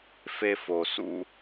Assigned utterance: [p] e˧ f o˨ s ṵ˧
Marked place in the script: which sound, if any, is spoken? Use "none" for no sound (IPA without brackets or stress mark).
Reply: f